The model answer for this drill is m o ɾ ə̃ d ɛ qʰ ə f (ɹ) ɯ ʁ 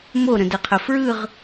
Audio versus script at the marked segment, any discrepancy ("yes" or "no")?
no